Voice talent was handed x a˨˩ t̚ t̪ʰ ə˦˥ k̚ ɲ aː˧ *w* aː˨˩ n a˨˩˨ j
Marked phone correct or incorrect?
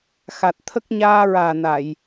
incorrect